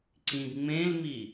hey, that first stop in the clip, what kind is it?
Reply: click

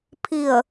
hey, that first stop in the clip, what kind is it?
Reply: aspirated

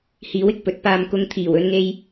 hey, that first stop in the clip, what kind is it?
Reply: plain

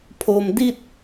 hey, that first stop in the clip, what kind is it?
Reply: aspirated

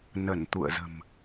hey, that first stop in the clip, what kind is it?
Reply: plain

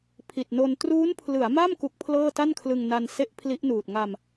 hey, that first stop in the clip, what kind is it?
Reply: aspirated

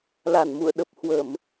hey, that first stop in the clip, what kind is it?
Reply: implosive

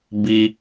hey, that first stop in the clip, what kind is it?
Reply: plain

